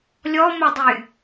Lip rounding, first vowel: rounded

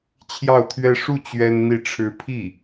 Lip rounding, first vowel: unrounded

